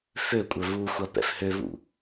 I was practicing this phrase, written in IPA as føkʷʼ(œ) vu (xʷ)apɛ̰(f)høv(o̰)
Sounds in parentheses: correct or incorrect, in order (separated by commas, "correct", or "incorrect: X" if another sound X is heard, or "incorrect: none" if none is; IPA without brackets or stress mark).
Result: correct, correct, correct, incorrect: ṵ